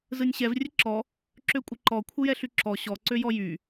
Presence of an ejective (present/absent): present